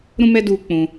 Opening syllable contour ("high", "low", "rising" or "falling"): high